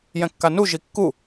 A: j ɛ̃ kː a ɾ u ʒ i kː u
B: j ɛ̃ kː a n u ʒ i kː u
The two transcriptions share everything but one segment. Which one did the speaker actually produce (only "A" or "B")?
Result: B